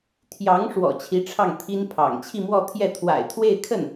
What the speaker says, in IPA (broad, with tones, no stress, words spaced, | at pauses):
t̪ʰjɑ˧˥ŋ ʂwɔ̰˨˩t͡ɕʰi˧˥ʈ͡ʂʰɑ˥˩ŋ t̪ʰi˥npʰɑ̰˨˩ŋ t͡ɕʰi˥˧mwɔ˥˧t̪ʰjɛ˥˩t̪ʰwa̰˨˩ɪ̯ t̪ʰwe˥˧ɪ̯kʰə˥˩n